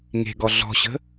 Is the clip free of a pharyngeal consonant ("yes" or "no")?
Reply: yes